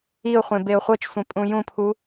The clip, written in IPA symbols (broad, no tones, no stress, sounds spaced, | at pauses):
i ʊ̯ χʷ ẽ b e ʊ̯ χʷ ɤ t͡ʃ sʷ ẽ pʼ ũ j ũ pʰ u